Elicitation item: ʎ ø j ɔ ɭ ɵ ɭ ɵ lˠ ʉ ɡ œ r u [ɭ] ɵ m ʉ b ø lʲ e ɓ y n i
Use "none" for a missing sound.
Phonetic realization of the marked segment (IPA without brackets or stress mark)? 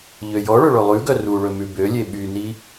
ɭ